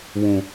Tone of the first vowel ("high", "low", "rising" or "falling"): low